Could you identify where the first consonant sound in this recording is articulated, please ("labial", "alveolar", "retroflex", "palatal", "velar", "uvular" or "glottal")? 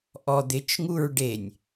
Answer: glottal